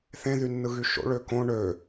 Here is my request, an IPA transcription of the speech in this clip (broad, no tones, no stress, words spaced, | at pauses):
θẽ ðynːɯɣyʃo̰ ɭøkõ ɳø